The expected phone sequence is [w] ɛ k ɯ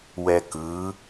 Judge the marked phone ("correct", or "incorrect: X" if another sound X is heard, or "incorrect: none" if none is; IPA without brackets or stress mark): correct